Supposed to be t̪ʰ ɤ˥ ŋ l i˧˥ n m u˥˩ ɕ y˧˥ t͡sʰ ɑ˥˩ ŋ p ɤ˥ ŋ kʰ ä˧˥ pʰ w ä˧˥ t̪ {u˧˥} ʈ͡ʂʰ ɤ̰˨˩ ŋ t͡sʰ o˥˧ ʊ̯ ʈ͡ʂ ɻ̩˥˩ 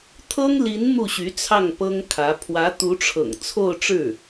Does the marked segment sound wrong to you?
no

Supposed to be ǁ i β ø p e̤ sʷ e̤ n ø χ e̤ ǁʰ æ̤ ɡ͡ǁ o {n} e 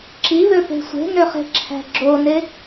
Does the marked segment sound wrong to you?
no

